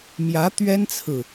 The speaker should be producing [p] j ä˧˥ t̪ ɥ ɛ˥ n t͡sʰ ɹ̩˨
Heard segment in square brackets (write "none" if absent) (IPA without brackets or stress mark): m